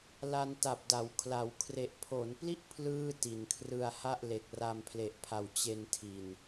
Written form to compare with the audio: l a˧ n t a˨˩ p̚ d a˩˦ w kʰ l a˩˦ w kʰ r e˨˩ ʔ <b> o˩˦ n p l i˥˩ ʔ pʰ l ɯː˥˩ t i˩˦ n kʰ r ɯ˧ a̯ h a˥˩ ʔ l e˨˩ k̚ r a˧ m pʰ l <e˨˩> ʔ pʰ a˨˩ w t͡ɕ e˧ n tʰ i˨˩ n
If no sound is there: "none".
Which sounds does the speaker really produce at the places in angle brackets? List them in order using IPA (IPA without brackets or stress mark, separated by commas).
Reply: pʰ, e˨˩